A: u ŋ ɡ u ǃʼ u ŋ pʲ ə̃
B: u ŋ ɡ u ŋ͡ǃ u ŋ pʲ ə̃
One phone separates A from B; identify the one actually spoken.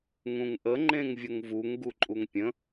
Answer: A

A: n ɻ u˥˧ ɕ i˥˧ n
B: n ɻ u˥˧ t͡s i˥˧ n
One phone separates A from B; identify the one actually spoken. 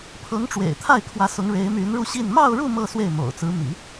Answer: A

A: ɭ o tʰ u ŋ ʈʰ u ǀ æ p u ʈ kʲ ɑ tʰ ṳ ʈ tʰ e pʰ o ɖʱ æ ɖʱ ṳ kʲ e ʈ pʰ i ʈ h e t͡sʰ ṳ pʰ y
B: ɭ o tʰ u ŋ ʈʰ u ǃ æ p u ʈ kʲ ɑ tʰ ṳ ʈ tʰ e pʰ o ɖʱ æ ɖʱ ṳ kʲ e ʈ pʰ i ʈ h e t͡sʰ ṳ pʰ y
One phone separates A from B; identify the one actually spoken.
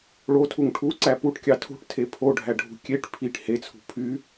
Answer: A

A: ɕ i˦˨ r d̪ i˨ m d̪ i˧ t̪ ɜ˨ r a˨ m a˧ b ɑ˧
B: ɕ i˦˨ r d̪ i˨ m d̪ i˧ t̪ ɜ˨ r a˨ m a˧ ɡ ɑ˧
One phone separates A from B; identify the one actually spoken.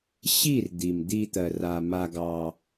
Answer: B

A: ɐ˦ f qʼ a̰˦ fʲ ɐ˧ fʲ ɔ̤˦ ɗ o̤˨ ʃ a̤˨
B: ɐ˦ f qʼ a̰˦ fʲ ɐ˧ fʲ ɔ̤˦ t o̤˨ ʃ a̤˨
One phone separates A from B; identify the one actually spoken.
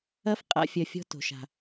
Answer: B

